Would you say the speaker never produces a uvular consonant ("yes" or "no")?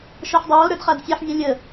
no